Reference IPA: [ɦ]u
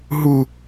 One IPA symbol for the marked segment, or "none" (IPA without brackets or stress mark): ɦ